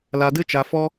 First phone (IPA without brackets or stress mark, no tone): l